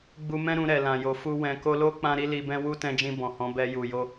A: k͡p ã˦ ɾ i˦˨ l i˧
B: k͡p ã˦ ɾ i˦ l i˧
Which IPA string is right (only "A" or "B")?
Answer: B